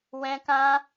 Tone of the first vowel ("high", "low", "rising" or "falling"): high